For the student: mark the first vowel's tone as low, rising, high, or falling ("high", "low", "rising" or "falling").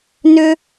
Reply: high